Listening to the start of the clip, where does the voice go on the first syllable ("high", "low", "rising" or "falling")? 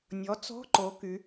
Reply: rising